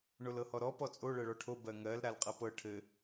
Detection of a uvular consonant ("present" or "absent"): present